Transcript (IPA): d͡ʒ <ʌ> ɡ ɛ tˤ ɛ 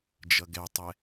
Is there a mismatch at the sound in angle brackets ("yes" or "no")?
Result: no